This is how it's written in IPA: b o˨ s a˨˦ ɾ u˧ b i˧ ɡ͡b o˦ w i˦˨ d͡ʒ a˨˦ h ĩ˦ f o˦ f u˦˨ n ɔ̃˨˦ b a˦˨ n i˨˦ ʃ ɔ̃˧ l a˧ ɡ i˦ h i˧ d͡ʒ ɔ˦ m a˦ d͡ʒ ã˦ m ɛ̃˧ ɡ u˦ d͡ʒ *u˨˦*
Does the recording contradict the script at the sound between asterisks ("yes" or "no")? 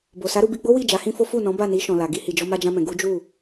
yes